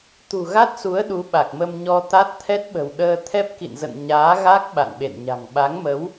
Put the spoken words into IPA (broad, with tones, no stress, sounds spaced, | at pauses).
t̪ ṳ˨˩ ɣ a˦˥ t̚ s u˨˦ ə̯ ɗ u˨˦ ɓ a˨˩ k̚ m ə˧ m ɲ ɔ˧ t̪ a˦˥ t̚ t̪ʰ ɛ˦˥ t̚ ɓ ə̤˨˩ w ɗ əː˧ t̪ʰ ɛ˦˥ p̚ k ḭ˧˨ n z ə̰˧˨ n ɲ aː˨˦ ɣ a˦˥ k̚ ɓ a̰˧˨ n ɓ ḛ˧˨ n ɲ a̤˨˩ ŋ ɓ a˨˦ ŋ m ə˨˦ w